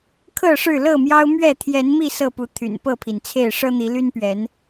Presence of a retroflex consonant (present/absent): present